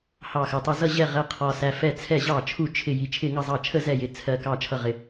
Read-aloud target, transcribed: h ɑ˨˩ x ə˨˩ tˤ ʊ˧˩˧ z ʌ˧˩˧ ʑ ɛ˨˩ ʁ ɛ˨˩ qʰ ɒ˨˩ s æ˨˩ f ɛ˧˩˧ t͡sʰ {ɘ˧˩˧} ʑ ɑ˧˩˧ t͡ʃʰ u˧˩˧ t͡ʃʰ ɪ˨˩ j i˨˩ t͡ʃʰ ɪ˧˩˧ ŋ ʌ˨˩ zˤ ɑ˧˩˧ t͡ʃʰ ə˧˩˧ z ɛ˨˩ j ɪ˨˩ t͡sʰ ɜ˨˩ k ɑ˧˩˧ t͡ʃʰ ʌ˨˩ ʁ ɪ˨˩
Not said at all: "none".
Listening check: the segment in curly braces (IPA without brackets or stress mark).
ɛ˧˩˧